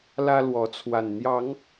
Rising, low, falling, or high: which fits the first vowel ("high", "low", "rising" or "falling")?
high